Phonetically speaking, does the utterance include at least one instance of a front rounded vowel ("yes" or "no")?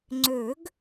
yes